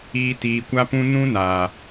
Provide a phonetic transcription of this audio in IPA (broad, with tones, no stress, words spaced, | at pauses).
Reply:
iː˦ tiː˨kʷa˦pũ˦ nũ˦naː˨